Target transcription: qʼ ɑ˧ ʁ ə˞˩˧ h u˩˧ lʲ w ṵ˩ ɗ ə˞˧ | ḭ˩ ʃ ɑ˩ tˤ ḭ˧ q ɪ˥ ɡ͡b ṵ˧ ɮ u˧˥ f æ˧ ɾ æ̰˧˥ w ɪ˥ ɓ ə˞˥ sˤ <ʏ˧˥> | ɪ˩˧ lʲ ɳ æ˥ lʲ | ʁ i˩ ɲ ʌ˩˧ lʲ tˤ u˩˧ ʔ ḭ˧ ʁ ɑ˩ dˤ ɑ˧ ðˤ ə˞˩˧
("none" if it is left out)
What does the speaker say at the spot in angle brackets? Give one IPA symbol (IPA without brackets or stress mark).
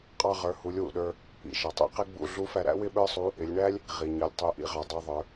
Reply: u˧˥